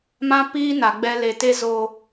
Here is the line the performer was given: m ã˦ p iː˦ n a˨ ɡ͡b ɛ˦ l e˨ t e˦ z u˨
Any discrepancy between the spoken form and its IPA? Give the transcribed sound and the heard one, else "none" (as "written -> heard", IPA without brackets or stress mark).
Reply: u˨ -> o˨